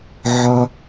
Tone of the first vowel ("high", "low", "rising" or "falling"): high